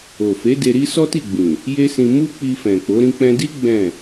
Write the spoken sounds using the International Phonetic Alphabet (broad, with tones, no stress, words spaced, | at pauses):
o˨fe˨˦ de˧ɾi˦ sɔ˦ti˦˨ɡ͡bĩ˨ | je˦sĩ˧ mu˦k͡pi˧fɛ̃˨k͡po˨˦ ɾĩ˧k͡pɛ̃˧di˦ ɡ͡bɛ̃˦˨